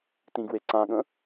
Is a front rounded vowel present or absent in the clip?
absent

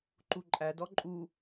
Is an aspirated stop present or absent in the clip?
absent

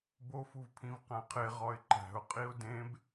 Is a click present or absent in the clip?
present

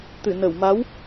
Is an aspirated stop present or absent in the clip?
absent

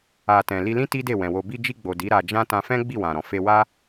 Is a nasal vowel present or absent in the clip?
present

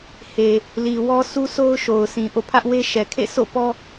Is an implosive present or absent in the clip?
absent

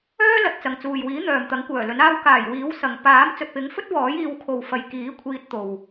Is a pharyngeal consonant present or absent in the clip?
absent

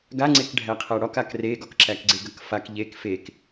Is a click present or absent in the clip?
present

